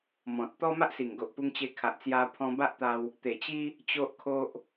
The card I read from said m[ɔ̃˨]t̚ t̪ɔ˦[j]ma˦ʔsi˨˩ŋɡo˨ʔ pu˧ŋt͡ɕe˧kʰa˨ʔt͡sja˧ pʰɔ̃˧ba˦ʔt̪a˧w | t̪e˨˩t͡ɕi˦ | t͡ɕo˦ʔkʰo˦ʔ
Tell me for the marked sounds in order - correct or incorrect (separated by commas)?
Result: correct, incorrect